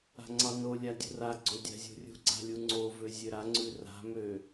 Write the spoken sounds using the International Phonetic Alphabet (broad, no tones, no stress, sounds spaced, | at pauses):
a̤ ŋ͡ǀ ɑ n o lʲ a dʲ ṳ r a ɡ͡ǀ o dʲ a̤ zʲ ṳ rʲ ṳ ɡ͡ǀ a̤ lʲ u ŋ͡ǀ o v ø zʲ ø ɾ a ŋ͡ǀ ʉ r a̤ m ø